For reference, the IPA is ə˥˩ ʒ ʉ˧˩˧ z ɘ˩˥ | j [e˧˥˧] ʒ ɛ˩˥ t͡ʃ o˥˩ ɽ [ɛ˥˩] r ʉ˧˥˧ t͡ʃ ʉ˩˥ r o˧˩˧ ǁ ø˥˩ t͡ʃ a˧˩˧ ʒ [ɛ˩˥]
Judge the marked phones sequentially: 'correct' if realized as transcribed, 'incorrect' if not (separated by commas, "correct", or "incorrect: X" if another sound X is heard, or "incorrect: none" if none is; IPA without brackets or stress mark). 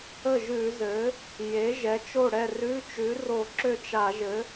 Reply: incorrect: e˩˥, correct, incorrect: ɘ˩˥